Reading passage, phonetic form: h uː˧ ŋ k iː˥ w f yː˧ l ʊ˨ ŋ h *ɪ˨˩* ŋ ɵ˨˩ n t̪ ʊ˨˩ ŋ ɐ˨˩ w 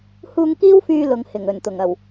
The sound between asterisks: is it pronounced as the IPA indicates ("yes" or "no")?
yes